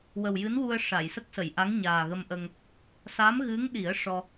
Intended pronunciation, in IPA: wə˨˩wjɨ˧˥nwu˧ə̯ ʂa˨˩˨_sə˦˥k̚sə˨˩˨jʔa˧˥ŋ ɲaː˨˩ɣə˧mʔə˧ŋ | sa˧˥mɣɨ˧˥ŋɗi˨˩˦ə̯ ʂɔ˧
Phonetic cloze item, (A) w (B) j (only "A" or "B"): B